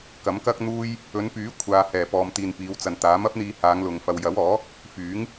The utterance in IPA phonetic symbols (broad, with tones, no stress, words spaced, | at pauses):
kɐ˨˥mkɐ˥k̚n̪uː˥j | ɵ˨˧npyː˨˥kʷʰaː˨ hɛː˨˩pɔː˨mt̪iː˨n piː˨˧wt͡sɐ˨nt̪aː˨˥m ɐ˥p̚n̪iː˧haː˨˧ŋlʊ˨ŋ fɐ˨wjɐ˨˥wɔː˨˥ | fyː˨˥ŋ